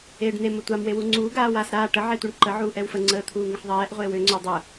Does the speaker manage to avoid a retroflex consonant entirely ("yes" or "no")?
no